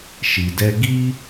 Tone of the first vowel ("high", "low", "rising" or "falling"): low